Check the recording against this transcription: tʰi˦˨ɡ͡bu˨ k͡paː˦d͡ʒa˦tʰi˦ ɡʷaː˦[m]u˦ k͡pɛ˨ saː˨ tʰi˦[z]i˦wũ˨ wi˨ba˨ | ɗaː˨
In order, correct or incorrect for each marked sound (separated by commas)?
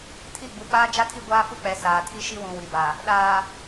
incorrect, incorrect